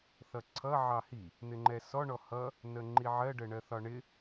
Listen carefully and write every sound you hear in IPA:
θ ʌ ǀʰ ʌ ʕ ɑ h i | n̪ ɪ ŋ͡ǃ ɛ s ɔ ɳ ɔ h ʌ | n ə ŋ͡ǃ i ʕ ɜ ɖ ə ɳ ɜ θ ɒ ɳ ɪ

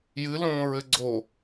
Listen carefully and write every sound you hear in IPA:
j ɨ l õː ɹ ɘ ɡ͡ǀ o

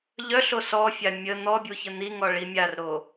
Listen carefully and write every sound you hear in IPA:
ʎ œ ɬ o s ɔ fʲ a mʲ ə n̪ ɔ bʲ u ç ə n̪ i ŋ ɔ ɭ i mʲ a r ɾ o

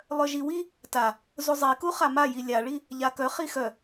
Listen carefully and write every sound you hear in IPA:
lˠ œ ʒ i w i | t a | z u zˤ i k u χ a m a j i lʲ a ɭ i | ʎ a k œ χ i x œ

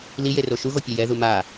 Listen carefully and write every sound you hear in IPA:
l i j e r o ʃ u ɣ o pʲ ɛ j ɛ ð u m a

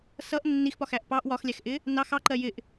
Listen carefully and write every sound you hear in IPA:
s ʌ ʔ nː i x p ɒ x æ ʔ p ɑ ʔ w ɒ x lʲ æ x ʔ ɪ | n ɑ x ɑ ǃ ɜ j ɪ ʔ

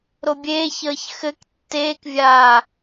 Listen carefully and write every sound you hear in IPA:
ɾ o bʲ eː ç əː ç x ɘ k tː eː k vʲ aː

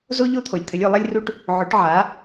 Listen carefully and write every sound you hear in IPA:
z o˥ ʎ o˥ t̪ʰ o˩ lʲ t̪ʰ ɘ˩˥ lʲ o˧ lˠ ɐ˥ lʲ r u˥ ʈ | ʕ o˩˥ ʈ ʕ a˩˥

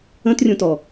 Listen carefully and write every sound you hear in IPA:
ə̃ t rʲ ũ t ɔ

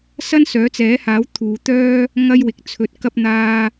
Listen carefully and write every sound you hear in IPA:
s ɐ˥ n s œː˨˥ t͡s ɛː˨˥ h aː˨˥ w t̪ʰ uː˨˧ t̪ œː˥ | ŋ ɐ˥ j w ɪ˨ k̚ t͡sʰ ɵ˧ t̚ k ɐ˥ p̚ n̪ aː˥

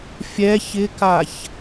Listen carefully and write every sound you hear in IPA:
fʲ ɛ ç ɪ k a ç

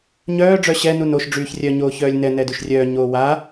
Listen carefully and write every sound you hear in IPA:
ɲ œː ɖ͡ʐ œ ɕ ɛ n u n o ʃ ɖ͡ʐ yː ç rʲ œ ɲ oː ç œː lʲ n ɛ n ɛ d y ʃ rʲ œː ɲ oː w a

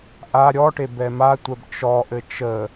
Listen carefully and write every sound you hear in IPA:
ʔ a ɾʲ ɔ ʈ e b ɛ m a tʷ ɛ b t͡ʃ ɔ ʔ ɘ t͡ʃ ə

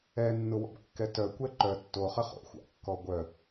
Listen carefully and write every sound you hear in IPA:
ɛ nː ʊ w ɔ̰ b kː ɛ t œ kʷ ɛ ǃ œ tː o χ ə χ o̰ xʷ a̰ kː ɔ ɡʷ œ

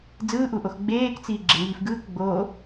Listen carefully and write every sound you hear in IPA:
d͡z ɯː ʔ u ʔ o x ɡ͡b eː k t͡s iː ɡ͡ǁ e ŋ iː f ɡ ɯː k ɡ͡b oː

